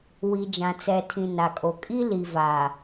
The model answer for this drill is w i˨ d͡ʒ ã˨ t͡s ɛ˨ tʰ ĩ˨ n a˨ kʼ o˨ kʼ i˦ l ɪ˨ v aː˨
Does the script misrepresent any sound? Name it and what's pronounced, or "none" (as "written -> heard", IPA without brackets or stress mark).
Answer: ɪ˨ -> i˨